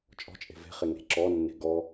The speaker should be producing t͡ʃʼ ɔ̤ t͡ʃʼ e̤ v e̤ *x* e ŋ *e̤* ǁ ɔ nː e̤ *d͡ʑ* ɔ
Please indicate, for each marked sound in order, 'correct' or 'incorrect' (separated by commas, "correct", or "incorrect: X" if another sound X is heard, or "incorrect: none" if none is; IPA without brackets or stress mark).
incorrect: χ, correct, incorrect: ɡ